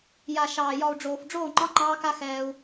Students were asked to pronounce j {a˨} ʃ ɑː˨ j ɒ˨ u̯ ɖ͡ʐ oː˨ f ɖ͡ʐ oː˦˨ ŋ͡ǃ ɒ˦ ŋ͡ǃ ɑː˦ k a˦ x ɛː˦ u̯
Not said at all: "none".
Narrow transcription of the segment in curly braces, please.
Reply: a˨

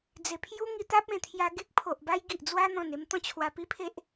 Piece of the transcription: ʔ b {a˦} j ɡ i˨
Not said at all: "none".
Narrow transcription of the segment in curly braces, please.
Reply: a˦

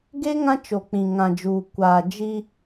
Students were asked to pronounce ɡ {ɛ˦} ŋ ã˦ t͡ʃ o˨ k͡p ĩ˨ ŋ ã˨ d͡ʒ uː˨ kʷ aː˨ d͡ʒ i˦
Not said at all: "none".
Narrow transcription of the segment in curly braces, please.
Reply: e˦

